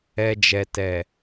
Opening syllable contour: low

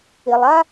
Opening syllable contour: low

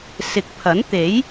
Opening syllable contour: rising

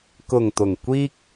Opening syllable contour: low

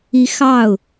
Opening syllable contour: rising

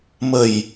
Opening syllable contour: low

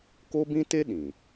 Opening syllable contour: high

